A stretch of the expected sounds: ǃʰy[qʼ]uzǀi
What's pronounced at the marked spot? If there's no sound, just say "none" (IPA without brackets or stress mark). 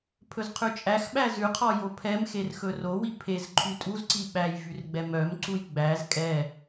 tʼ